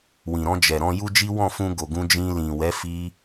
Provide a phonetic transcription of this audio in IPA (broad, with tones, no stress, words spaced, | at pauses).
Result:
wĩ˨ɾɔ̃˧d͡ʒɛ˨ ɾɔ̃˧ju˦d͡ʒi˦ wɔ̃˦˨fũ˧ɡo˨ ɡũ˧d͡ʒĩ˧ lĩ˨wɛ˨˦ fi˦